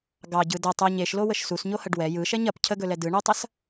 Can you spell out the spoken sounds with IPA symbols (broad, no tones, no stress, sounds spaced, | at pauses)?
ɡ ɑ ɟ ɯ d ɐ tˤ o ɲ e ʃ l o w ə ʃ s u s ɲ o h ɐ ɖ w ɛ j ɯ ʃ ɛ ɲ ɐ p cʰ ə ɡ ɵ l ɛ d ɯ ɳ o tˤ ɐ s